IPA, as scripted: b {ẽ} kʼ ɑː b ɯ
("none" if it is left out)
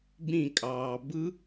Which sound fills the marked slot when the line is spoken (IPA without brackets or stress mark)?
ĩ